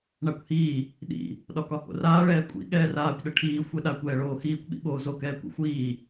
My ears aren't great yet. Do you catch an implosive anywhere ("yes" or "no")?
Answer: yes